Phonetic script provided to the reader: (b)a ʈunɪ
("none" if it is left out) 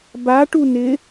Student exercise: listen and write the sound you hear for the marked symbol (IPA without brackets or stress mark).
b